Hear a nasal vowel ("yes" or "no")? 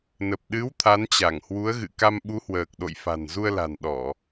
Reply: no